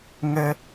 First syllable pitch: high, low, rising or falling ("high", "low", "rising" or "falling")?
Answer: high